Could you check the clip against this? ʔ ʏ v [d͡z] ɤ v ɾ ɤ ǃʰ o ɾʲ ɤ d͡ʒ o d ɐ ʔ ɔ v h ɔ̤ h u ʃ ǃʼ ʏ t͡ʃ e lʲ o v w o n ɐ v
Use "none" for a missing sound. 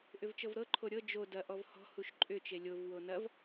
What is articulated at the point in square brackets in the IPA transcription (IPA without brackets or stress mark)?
t͡ʃ